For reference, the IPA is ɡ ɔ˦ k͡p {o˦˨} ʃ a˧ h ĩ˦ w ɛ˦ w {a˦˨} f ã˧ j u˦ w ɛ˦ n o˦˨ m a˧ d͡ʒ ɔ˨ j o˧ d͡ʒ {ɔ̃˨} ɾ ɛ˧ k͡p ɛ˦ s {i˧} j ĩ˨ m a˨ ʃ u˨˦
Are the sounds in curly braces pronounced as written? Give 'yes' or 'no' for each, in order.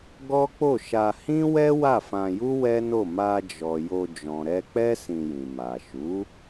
yes, yes, yes, no

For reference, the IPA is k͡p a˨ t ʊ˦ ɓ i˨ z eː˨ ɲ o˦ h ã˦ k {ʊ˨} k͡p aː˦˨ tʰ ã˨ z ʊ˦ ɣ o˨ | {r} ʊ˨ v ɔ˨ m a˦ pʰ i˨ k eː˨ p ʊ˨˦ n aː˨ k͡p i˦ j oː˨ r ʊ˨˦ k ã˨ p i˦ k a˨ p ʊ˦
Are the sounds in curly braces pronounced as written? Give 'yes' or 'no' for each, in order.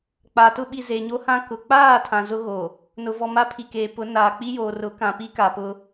yes, no

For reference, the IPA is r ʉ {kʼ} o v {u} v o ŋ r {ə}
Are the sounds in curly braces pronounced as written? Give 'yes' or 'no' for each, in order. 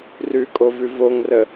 yes, no, yes

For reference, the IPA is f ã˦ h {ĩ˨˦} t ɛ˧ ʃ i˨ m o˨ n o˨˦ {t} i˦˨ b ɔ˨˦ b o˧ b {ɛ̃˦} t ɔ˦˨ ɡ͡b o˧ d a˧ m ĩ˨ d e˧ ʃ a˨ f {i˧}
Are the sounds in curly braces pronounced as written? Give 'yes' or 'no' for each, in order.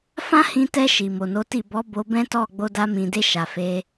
no, yes, yes, no

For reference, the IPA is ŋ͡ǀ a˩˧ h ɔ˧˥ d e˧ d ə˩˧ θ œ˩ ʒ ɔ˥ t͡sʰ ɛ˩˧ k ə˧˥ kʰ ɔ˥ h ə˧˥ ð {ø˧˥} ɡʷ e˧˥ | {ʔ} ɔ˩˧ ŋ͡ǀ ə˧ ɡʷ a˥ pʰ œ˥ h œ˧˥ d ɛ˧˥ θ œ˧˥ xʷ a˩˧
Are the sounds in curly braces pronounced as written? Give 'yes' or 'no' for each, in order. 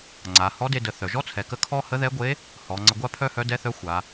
no, no

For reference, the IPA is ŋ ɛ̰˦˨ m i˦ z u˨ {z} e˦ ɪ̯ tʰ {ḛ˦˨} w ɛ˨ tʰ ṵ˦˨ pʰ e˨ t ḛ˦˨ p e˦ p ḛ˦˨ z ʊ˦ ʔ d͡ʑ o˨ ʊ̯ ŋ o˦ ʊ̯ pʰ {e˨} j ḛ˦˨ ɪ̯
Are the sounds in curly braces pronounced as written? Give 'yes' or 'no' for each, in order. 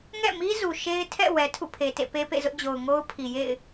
no, no, no

